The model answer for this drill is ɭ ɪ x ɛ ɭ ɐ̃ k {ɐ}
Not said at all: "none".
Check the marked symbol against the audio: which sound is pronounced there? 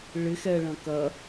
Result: ɐ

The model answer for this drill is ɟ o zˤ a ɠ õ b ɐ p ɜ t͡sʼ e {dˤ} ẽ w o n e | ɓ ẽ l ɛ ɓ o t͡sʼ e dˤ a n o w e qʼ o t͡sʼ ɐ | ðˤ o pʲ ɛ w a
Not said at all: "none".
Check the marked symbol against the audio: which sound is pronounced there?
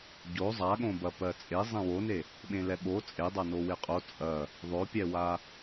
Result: zˤ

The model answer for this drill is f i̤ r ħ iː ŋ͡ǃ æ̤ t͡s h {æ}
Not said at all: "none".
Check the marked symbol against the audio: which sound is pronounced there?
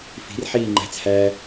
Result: æ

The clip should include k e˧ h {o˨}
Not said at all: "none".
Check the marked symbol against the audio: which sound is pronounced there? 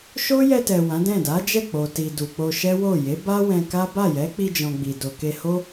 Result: o˦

